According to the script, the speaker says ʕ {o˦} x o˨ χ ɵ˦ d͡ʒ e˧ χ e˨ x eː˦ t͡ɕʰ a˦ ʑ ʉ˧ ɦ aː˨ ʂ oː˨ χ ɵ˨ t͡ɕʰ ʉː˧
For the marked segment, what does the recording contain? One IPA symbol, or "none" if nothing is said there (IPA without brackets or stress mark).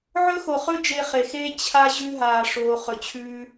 ɵ˦